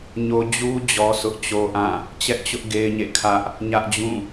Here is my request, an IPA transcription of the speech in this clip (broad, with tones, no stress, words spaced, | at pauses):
ɲo˦ d͡ʑu˦ d͡ʑɔ˦sʊ˦ʔt͡ɕo˦ʔã˦˨ | t͡ɕɛ˦ʔt͡ɕʊ˦ʔ ɡe˦ɪ̯ɲḛ˦˨kʰä˦ʔ | ɲä˦ʔd͡ʑũ˦˨